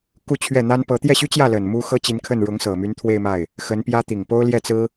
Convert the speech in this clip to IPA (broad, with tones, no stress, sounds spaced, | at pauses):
k u˥˧ t͡ɕʰ ɥ ɛ˥˩ n̪ a˥ n p ɤ˧˥ t̪ j ɛ˥˩ ɕ y˥ t͡ɕ j ä˥˩ l ə˨˩ n m u˥ x ɤ˥ t͡ɕ i˧˥ n kʰ ə˥˩ n ɻ ʊ˧˥ ŋ s ɤ˨˩ m y˧˥ n t̪ʰ w e˥˧ ɪ̯ m a˥˩ ɪ̯ | x ə˧˥ n p j ä˥ t̪ i˨˩ ŋ p o˥ ʊ̯ l j ɛ˥˩ t͡s ɹ̩˥